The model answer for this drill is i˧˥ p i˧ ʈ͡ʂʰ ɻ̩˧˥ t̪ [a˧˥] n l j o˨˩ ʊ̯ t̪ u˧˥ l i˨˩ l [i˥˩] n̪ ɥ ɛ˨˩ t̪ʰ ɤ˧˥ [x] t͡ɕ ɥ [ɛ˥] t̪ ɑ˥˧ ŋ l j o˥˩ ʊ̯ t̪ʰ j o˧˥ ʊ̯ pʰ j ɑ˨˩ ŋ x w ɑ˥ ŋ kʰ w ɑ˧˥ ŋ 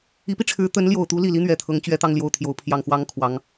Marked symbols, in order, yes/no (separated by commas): no, no, no, yes